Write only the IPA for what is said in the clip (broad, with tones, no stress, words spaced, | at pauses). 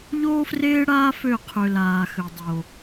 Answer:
ʎoː˦freː˦ɽaː˦ fø˦˨qʰø˨ laː˨xø˨ dˤo˨